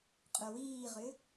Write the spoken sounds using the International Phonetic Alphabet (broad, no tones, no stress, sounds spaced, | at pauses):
qʼ œ w iː ʁ ʏ